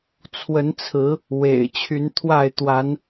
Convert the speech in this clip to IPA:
t͡sʰ w ə˨˦ n t͡sʰ ɹ̩˨˦ | w ḛ˨˩ ɪ̯ t͡ɕʰ y˨˦ n t̪ʰ w a˥˨ ɪ̯ t̪ w a˨˦ n

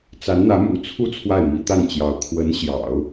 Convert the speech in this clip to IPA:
t͡s a˧˥ n n̪ ä˧˥ m ṵ˨˩ t͡sʰ u˥˧ t͡sʰ w a˥˩ ɪ̯ m i˧˥ t̪ a˥˩ n t͡ɕ j ɑ˧˥ ʊ̯ kʰ w ə˧˥ n ɕ j ɑ̰˨˩˦ ʊ̯

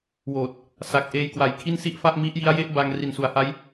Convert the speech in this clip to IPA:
w oː˨˩ t̚ | s a˨˩ k̚ ʔ eː˧ j k w a˨˩ j kʰ i˥˩ n s i˥˩ ʔ f a˥˩ ʔ m i˦˥ ʔ j i˦˥ a̯ j e˥˩ ʔ b a˧ ŋ r i˨˩ n s u˩˦ a̯ h a˦˥ j

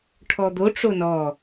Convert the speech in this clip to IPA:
ʈʰ ɔ d̪ o ʈ͡ʂ o n ɔ

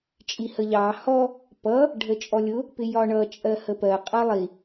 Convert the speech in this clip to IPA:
t͡ʃʼ i h ə ʎ ɑ h ɔ | p ʌ | ɖʱ ə t͡ʃʼ ɔ lʲ ʊ | p ɪ j ɒ ɳ ʌ t͡ʃʼ ɜ h ə p ɜ qʼ ʌ lˠ i

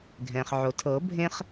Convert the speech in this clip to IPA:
ɡʱ ɛ̃ː˩ χ ʕ o˩ tʰ ɤ˨˩˦ bʱ ẽ˦ χ

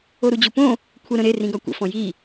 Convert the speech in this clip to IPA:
o ɾ u d͡ʑ u p õ | kʷʰ ə ɾ ə̃ ɾ e r ĩ ɡ ɒ kʷ ə̰ f ɔ̃ j i

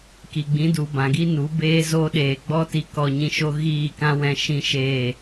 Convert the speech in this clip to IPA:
k i˨ ɡ͡b ĩ˨˦ d u˨ b ã˨ ɡ i˦ n u˨˦ b eː˦ z oː˦ ɗ eː˨ ɡ͡b ɔ˦ t i˧ k ɔ˧ ɲ ĩ˧ ʃ o˦ ɣ iː˦˨ k ã˦ w ɛ̃˧ ʃ ĩ˦ ʃ eː˦˨

